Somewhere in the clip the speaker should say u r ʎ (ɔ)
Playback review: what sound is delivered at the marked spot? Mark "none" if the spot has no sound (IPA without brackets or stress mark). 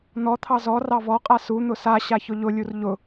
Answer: ʊ